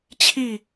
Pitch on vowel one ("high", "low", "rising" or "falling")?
falling